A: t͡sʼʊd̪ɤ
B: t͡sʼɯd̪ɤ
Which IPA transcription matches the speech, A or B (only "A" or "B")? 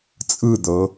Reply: B